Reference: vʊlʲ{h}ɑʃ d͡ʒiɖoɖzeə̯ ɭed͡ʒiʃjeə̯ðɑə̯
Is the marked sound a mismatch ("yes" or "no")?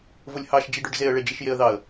no